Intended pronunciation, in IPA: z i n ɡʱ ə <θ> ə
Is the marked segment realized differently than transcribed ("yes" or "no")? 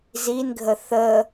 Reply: no